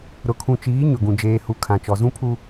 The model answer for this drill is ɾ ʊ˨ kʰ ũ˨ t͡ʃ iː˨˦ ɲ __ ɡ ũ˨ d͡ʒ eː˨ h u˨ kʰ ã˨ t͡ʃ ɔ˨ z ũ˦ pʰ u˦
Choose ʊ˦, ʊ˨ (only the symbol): ʊ˨